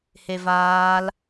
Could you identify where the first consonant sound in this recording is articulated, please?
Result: glottal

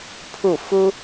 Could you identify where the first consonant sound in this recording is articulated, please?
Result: labial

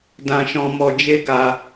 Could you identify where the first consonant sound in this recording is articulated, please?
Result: alveolar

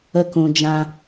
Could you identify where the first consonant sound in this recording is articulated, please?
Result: velar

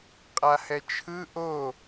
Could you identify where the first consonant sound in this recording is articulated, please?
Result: uvular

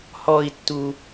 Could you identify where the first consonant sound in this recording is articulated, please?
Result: glottal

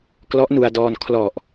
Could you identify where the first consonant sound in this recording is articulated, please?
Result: velar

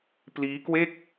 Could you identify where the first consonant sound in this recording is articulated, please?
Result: labial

